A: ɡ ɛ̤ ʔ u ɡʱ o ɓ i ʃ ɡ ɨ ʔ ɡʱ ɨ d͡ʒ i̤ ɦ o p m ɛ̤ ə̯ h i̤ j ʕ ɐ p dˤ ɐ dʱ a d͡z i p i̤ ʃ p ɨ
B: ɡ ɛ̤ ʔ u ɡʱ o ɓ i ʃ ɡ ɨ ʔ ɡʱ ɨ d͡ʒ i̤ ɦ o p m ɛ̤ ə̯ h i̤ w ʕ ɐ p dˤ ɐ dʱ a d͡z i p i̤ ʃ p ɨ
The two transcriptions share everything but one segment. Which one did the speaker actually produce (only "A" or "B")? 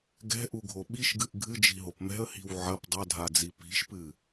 B